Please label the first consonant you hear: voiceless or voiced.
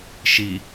voiceless